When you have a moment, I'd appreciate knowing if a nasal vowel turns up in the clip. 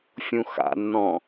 yes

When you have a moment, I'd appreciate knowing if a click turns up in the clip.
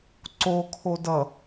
yes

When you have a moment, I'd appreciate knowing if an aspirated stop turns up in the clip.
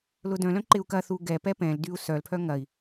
yes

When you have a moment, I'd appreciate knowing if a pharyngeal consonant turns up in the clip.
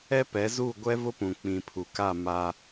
no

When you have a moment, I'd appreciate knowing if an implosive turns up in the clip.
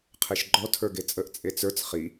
no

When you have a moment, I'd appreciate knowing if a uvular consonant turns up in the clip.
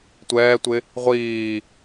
yes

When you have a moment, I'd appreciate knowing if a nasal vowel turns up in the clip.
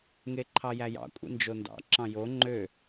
yes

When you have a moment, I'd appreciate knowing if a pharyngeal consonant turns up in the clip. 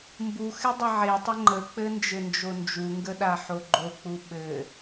yes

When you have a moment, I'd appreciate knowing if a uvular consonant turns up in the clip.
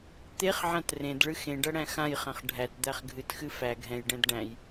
yes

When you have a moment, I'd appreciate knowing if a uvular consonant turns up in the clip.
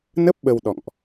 no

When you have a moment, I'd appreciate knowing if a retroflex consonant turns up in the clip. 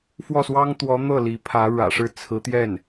yes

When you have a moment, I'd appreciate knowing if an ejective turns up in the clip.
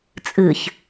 yes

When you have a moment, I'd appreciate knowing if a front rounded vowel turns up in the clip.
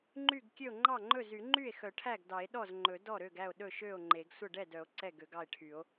yes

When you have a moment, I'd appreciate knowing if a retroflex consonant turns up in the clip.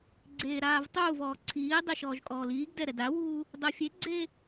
no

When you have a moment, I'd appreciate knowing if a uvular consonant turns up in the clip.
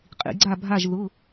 yes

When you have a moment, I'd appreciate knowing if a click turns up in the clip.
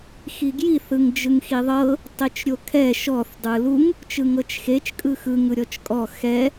no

